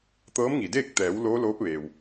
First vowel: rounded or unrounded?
unrounded